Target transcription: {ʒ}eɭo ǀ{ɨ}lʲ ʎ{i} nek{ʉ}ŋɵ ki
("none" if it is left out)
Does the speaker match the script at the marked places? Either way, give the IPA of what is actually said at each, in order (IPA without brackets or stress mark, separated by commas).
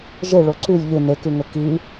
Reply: ʒ, ʉ, ɨ, ʉ